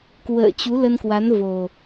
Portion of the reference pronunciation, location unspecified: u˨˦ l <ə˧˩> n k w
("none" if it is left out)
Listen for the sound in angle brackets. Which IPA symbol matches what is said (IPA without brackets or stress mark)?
ə˧